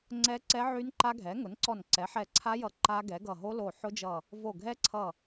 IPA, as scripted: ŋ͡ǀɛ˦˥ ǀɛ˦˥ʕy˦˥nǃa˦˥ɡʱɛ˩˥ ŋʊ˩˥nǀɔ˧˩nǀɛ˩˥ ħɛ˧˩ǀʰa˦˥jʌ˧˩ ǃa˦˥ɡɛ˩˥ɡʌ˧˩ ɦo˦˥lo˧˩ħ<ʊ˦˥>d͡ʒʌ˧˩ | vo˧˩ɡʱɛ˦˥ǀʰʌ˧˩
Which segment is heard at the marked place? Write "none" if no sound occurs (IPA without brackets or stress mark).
ʊ˦˥